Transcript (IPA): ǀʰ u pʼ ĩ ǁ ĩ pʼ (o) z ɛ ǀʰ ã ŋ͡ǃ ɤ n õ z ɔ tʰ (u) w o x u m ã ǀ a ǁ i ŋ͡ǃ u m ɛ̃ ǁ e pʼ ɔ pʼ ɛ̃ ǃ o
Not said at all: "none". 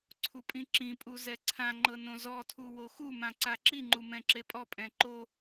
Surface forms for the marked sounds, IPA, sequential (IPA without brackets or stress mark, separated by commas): u, u